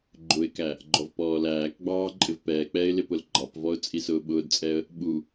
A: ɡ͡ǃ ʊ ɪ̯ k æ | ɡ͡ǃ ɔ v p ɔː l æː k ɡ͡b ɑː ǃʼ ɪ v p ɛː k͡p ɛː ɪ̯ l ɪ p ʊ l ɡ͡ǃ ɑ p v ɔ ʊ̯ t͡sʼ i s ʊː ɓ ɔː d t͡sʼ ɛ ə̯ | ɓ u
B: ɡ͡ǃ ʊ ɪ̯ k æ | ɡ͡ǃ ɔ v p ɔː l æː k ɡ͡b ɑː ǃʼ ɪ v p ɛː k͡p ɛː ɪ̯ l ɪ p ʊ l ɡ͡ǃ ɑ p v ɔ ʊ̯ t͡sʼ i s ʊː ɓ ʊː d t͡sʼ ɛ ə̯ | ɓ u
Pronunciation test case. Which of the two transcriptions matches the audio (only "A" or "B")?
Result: B